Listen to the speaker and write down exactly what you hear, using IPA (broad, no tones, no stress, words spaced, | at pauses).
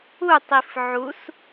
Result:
utˤif ʕus